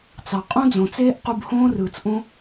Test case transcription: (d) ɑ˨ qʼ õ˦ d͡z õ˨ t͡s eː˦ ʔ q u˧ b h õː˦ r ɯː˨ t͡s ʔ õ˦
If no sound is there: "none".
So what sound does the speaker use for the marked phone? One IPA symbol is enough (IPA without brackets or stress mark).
t͡s